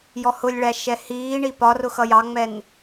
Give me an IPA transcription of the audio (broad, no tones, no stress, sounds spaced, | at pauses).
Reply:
j ɔ h ʊ lʲ ɭ æ ʃ ɛ h iː ɳ i p ɒ r ʊ x ʌ j ɑ ŋ͡m ɛ n